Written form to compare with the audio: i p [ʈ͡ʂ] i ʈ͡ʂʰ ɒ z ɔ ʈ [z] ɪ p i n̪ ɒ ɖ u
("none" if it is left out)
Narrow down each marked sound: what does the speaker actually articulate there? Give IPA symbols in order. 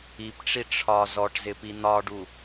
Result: ʈ͡ʂ, z

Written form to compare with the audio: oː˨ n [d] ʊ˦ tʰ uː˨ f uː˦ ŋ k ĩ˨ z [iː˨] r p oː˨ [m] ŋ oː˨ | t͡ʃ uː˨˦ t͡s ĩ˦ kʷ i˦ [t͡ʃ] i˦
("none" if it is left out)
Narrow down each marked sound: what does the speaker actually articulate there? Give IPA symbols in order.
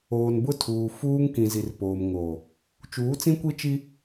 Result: b, i˨, m, t͡ʃ

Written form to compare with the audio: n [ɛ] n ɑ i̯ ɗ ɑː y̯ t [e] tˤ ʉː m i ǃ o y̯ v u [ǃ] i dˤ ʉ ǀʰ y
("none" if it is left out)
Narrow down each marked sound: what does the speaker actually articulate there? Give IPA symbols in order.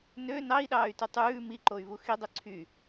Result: ø, y, x

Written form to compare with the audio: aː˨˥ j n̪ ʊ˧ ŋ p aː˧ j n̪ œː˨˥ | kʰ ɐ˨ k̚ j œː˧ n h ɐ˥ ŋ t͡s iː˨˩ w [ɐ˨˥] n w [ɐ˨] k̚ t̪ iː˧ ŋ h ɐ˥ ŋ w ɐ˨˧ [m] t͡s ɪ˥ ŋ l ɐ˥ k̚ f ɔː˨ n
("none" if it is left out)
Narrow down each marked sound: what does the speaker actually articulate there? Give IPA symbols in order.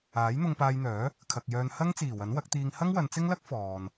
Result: ɐ˨˥, ɐ˨˥, n

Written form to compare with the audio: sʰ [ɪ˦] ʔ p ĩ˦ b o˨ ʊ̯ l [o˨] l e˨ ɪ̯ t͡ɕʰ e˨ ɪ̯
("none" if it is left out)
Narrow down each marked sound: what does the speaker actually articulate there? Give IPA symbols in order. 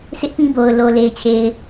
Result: ɪ˦, o˨

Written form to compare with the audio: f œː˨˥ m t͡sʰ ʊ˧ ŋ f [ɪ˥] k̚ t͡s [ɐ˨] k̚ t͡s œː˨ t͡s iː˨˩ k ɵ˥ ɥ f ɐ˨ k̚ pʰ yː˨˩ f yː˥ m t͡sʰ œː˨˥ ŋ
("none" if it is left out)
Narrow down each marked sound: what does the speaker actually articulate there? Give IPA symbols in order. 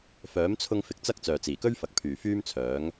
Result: ɪ˨˥, ɐ˥

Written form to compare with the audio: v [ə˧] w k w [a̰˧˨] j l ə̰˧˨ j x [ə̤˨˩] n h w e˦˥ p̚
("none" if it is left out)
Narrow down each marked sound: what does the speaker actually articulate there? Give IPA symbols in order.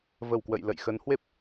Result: ə˧˩, ə̰˧˨, ə˨˦

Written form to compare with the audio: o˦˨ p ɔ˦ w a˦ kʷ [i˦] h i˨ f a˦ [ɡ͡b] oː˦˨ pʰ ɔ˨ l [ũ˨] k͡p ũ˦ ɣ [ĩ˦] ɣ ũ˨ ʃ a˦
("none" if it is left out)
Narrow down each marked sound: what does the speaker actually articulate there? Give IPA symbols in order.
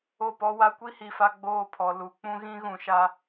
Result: i˦, ɡ͡b, u˨, ĩ˦

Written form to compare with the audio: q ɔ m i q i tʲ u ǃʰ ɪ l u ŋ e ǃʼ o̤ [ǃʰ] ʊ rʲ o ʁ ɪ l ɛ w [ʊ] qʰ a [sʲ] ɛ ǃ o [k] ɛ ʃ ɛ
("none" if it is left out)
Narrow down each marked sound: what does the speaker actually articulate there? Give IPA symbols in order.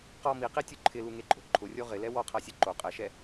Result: ǃʰ, ɔ, sʲ, qʼ

